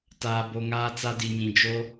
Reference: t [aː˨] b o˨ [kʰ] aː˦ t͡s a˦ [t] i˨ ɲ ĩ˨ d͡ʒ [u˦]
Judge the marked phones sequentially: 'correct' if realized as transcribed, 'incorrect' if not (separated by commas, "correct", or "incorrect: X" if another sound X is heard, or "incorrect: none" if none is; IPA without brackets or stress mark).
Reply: correct, incorrect: ŋ, incorrect: d, incorrect: o˦